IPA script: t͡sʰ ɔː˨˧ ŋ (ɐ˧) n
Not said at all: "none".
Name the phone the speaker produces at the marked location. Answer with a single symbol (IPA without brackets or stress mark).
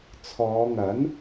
ɐ˨˥